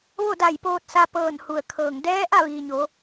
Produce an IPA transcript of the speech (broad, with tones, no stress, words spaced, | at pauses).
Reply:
ʋo˥˨da˧˩jpoː˧t̚sa˧ pɤː˧˩n hu˧˩ə̯kʰɤː˧˩ŋ dɛː˧˥ ʔa˥˨ʋiː˩ɲo˩˧